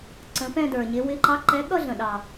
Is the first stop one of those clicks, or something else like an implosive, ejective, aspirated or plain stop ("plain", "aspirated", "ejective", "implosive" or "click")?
click